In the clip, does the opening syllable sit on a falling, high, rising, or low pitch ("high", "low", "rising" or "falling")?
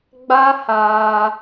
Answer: high